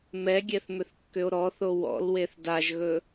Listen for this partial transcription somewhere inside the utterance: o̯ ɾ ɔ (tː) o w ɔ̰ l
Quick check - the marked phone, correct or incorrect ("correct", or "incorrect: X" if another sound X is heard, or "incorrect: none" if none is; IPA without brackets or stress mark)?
incorrect: θ